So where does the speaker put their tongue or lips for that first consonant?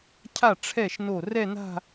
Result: palate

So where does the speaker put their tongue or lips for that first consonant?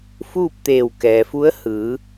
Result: lips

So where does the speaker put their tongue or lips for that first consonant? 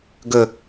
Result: velum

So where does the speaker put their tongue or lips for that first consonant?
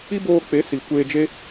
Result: lips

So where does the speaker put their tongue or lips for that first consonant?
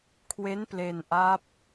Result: velum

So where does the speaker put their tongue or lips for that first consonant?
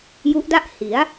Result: palate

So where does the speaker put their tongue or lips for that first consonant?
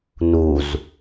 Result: tongue tip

